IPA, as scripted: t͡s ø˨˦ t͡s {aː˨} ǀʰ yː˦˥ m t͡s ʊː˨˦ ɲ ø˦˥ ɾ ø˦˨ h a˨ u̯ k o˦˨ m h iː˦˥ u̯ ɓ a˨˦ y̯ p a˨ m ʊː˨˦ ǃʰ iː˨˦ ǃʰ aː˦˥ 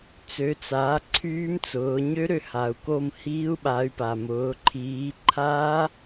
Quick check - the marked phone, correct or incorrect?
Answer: incorrect